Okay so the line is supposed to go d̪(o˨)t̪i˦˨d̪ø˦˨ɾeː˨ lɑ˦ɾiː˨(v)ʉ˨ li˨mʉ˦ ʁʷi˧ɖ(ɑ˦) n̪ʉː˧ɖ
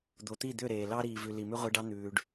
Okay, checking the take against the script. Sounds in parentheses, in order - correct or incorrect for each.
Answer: correct, correct, correct

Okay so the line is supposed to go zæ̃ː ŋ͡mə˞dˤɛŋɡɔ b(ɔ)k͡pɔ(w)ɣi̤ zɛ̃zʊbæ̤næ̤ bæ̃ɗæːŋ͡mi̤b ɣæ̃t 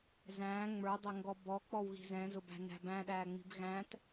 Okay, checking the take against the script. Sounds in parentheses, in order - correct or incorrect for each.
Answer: correct, correct

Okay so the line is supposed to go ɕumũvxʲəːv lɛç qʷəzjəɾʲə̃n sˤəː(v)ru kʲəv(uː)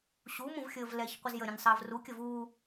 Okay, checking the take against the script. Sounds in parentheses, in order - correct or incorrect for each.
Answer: correct, correct

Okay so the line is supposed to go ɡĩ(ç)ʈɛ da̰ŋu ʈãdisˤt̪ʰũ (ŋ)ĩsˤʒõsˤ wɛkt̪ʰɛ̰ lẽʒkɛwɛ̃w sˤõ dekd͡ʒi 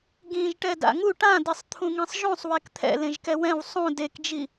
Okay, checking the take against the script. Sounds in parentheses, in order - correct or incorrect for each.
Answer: incorrect: ʒ, correct

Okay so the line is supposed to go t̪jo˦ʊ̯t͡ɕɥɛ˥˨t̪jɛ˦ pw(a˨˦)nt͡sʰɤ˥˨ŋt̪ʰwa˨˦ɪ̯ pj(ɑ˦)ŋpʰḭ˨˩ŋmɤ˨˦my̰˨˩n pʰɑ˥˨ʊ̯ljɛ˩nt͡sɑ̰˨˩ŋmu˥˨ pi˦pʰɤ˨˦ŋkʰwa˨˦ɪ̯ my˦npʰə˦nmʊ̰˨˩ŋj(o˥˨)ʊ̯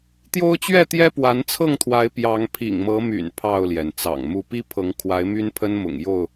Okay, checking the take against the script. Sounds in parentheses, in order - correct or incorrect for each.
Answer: correct, incorrect: ɑ˨˦, correct

